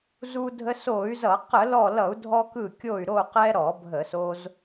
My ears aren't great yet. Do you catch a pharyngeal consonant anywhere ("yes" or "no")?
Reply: no